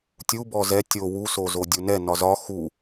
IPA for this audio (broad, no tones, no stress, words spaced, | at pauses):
tʲu bɔzɛ tʲo wusozo dʲunɛ nɒzɒ xu